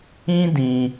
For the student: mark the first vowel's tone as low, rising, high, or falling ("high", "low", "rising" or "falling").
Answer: high